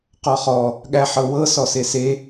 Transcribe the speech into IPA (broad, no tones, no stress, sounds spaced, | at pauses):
q ɔ χ ɔ | ɠ æ ħ ɤ w ɤ s ɔ s e s e